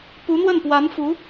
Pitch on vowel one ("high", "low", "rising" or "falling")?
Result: rising